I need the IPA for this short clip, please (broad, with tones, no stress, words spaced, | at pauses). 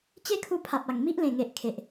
t͡ɕe˦kʰu˧pʰa˨p̚a˨˩ŋ mi˦ʔlẽ˨˩ŋe˨ʔ kʰe˨ʔ